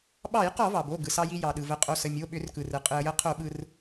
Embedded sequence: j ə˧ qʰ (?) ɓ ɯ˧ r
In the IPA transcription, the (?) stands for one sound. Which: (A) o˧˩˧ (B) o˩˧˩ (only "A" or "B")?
A